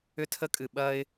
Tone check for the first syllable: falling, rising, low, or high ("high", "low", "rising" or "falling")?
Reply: high